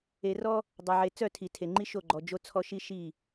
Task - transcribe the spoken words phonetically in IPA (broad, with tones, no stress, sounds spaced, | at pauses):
e˨ r ɔ˦ | dˤ ɐ˨ ʕ e˨ t͡s œ˦˨ tʰ i˨ tʰ e˨ ŋ͡ǃ i˦ ʃ o˦˨ ɡ͡ǃ ɔ˨ d͡ʒ o˦ t͡sʰ ɔ˦ ʃ i˦ ʃ i˦˨